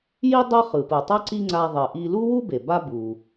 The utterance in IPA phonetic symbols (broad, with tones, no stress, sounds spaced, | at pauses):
j i˥ dˤ ʌ˥ χ ɯ˩ p ɯ˩ tˤ ʌ˥ ǀ i˥ ŋ͡ǀ a˧ ðˤ e˩ ʔ i˧ l u˥ w u˥ b e˩ b a˥ b u˩